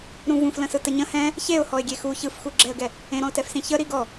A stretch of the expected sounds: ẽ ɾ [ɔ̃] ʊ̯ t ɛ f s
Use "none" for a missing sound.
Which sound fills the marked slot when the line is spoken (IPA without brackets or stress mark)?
ɔ̃